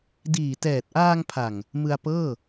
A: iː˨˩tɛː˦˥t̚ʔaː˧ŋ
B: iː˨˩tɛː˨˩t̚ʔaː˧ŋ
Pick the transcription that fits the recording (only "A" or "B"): B